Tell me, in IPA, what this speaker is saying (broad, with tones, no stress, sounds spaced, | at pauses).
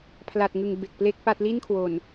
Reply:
pʰ l a˨˩ t̚ ŋ ɯ˨˩ ŋ b e˨˩ k̚ p l e˥˩ k̚ p a˥˩ t̚ l i˥˩ n kʰ w o˨˩ n